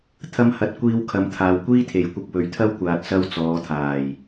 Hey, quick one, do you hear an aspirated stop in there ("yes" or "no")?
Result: yes